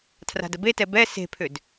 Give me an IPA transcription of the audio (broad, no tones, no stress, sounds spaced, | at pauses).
tʰ r a̤ d ə b e t ɛ b ɛ s e̤ pʰ ʏ d